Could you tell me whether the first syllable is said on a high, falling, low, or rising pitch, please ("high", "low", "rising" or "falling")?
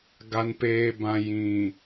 low